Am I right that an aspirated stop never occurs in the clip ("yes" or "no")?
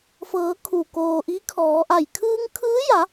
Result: no